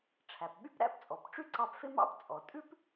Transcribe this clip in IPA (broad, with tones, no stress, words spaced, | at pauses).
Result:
ʈ͡ʂʰæ˩pɓy˥pɾæ̰˥p t͡sʼɔ˩pʈ͡ʂy˥ǀɑ˧pfe˥ mɑ̰˥pt͡sʼɔ˩ tʼʉ˥p